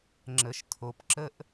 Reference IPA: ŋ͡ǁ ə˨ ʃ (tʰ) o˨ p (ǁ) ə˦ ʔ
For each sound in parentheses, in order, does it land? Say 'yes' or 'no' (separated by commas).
yes, yes